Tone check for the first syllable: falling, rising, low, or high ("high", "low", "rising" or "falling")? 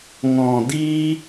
low